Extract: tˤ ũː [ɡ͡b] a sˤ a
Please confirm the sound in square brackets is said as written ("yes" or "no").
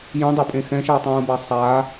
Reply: no